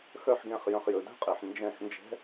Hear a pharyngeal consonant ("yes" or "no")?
yes